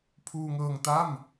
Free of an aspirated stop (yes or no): no